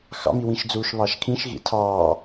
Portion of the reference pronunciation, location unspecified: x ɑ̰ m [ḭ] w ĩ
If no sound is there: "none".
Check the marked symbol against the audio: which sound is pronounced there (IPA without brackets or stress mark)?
i